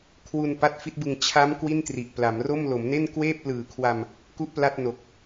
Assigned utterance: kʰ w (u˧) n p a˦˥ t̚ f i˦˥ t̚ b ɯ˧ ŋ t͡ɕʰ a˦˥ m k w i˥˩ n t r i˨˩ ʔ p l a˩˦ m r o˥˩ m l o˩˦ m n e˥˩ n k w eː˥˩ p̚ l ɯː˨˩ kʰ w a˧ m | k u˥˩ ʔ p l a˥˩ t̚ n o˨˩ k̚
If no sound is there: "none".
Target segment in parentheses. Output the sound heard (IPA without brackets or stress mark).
u˧